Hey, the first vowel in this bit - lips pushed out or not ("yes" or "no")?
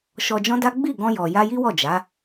yes